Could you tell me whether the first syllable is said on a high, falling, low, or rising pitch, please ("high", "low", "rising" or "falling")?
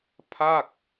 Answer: falling